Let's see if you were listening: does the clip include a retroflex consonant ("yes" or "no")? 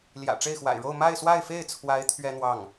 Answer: yes